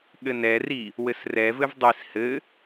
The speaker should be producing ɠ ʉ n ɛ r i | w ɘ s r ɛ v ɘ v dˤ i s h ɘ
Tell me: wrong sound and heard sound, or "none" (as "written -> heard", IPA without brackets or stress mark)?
ʉ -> ɘ